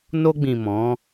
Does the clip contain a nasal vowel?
yes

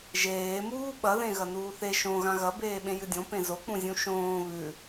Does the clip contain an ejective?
no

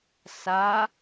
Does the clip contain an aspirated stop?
no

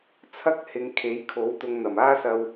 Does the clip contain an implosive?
no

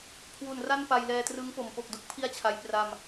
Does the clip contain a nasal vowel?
no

